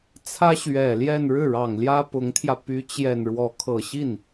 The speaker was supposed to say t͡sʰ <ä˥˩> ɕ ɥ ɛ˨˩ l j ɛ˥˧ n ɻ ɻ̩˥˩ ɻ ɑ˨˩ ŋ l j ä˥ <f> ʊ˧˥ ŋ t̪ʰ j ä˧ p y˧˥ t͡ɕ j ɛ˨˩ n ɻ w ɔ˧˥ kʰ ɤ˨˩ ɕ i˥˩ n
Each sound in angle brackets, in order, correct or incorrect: incorrect: ä˥, incorrect: p

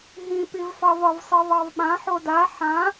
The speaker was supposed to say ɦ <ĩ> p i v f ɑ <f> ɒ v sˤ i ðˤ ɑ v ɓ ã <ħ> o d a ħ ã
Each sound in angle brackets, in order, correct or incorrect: correct, incorrect: v, correct

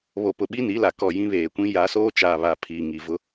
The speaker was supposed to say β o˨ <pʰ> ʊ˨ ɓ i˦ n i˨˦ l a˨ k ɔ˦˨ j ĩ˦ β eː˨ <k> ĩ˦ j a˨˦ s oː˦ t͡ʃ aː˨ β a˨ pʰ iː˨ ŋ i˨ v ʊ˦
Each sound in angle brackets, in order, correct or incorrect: incorrect: p, incorrect: kʷ

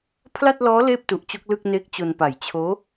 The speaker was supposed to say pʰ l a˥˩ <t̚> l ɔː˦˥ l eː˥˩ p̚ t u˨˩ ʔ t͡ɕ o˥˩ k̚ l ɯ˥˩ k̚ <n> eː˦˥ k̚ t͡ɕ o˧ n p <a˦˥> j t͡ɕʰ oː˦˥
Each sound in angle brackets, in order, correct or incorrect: correct, correct, incorrect: a˨˩

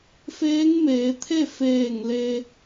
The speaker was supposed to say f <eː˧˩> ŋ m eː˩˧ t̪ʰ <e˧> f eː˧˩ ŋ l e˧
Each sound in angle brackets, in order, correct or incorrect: incorrect: eː˧˥, incorrect: e˥˨

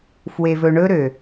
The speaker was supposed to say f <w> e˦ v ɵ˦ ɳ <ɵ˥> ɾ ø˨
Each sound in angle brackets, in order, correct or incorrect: correct, correct

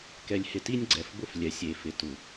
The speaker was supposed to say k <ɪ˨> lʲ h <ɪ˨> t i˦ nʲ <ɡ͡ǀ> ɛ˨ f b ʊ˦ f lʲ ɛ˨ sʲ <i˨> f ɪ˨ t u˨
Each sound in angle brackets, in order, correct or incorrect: incorrect: ɛ˨, correct, correct, incorrect: e˨

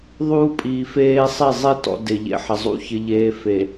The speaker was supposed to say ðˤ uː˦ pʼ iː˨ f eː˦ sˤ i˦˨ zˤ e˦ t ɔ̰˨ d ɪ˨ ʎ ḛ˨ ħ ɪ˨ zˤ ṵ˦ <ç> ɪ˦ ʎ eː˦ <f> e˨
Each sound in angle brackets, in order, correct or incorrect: correct, correct

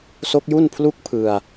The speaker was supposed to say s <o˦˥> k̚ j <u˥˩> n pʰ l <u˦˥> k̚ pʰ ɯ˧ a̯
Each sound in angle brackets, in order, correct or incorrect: correct, correct, incorrect: u˥˩

